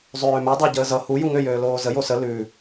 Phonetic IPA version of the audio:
zˤ øː m ʉ dˤ o ɟ əː z ʌ h u j u ŋ ø j øː l oː z ə j o s ə l ʉ

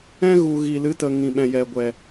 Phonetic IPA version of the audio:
ɛ̃˦ ɣ u˨ ɣ i˨ l ɨ˨˦ t ə˨ ŋ ĩ˨ ɓ ɛ̃˨ j ɛ˨ ɡʷ ɛ˨

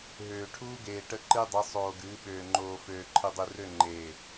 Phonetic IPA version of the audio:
ɦ øː˨ ʈʰ uː˦ ɡ eː˨ ʈ ə˦ ǃ ɨ˦ dˤ ɨ˨˦ sˤ oː˨ ɡ ɨː˨˦ ɓ øː˨ ŋ͡ǃ oː˨ f øː˨ ǃʰ ɨ˨ dˤ ɨ˨ r ø˦˨ ŋ͡ǃ eː˨

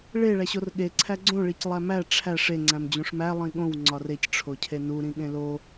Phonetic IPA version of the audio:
ɭ e ɭ æ ɕ o r ɠ e ǀʰ æ ɡ͡ǀ õ ɭ i c lˠ æ m æ ʈ͡ʂʰ æ ʂ e ŋ͡ǀ æ̃ m d͡ʑ ũ ʂ m æ lˠ ĩ ɠ õ w ŋ͡ǀ ɒ r e c ʈ͡ʂʰ o cʰ e n u ɾ ĩ ɠ ẽ l o

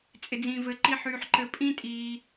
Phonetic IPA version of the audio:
t͡sʼ ɪ˨ d͡z ĩː˨ v ɘ˨˦ ǃ i˧ ħ yː˧ ħ ǃ ɘ˧ pʼ ĩ˦ tʼ iː˧

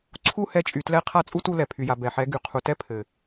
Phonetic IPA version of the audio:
ǀʰ u˦˨ h ɛ˧ t͡ʃʼ y˨ t l ɛ˧ qʰ a˦˨ t͡sʼ u˦ t u˧ l ɛ˨ pʰ y˨ j a˨ b ɛ˨ ħ ɛ˨˦ ɡ y˨ qʰ u˨ t ɛ˦ pʰ ɘ˨

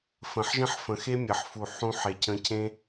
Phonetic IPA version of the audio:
f ə̃˨ ħ ʒ ə̃˦ ħ f ə̃˨ x e˦ mʲ ə˨ ħ f u˨ ħ ũ˨˦ ħ e˨ cʰ ə̃˧ cʰ ẽ˦

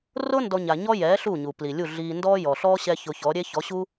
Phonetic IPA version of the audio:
r ʊ˥ n d ɔ˥ ɲ a˧ ɲ ɔ˥ j ɛː˩˥ ɬ u˥˩ ɲ u˩ p l i˩ lʲ u˥˩ ɮ iː˧ n d ɔ˥ j ɔ˩ ɬ ɔː˥ ɕ ɛ˥ ç ʊ˧ ç ɔ˩˥ ɾʲ e˥ ç ɔ˩˥ ɕ u˥

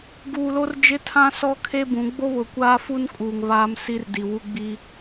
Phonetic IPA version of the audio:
ɡ uː˨ l o˦ r d͡ʒ ɪ˦ tʰ ã˦ s ɔ˦ kʰ e˦ b ũ˨˦ ɡ͡b o˦ β ʊ˨ kʷ aː˦ f u˦ n kʼ uː˨ ŋ β aː˦ m s i˦ r d i˨ w u˦ ɡ͡b i˦

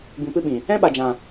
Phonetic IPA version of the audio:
b ĩ˧ p ɨ˦ ɓ ĩ˨ | ɛ̃˦ ɓ a˨ d͡ʒ ã˨

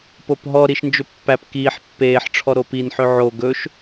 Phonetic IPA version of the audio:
p o p ɦ ɔ ɾ i ʃ n d͡ʒ ɵ pː æ p k iː ħ pː eː ħ ʈ͡ʂʰ ɔ ɾ o p i n ħ ø ʕ o ɡ ɵ ʃ

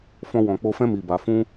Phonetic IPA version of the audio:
f ɔ̃˧ w ɔ̃˨ k͡p o˧ f ɛ̃˦ m i˧ b a˧ f ũ˦

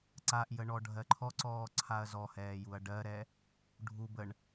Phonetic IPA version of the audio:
ǀ a ʔ j ə ɳ ɔ ɖʱ ɜ ǃʰ ɔ ǀ ɔː ǀʰ a ɐ̯ z ɔ h ɛː j u ɐ̯ ɖ ɜ ɾ ɛ | ɖʱ u b ə ɳ

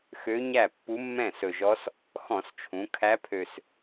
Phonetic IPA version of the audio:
x ø˧˥ ɲ æ˥˩ pː u˧˥ mː ɛ̃˥˩ s ɵ˨˩ ʒ ɔ˧˥ s | x ɔ̃˧˩˧ s t͡ʃʰ ũ˩˧ kʰ æ˧˥ pʰ ø˨˩ s

